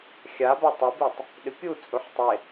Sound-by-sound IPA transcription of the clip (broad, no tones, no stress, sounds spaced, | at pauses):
xʲ a b a tˤ o b i tˤ | ɗ ɪ pʲ u t͡sʼ u ħ tˤ e